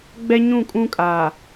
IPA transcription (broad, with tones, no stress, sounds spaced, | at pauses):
ɡ͡b ɛ˦ ɲ ũ˦˨ kʼ ũ˦ kʼ aː˨